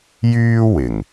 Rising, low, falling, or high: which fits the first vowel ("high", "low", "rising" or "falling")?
high